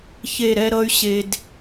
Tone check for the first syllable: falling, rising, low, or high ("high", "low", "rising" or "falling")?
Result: falling